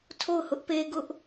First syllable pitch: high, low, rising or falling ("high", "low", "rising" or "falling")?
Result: falling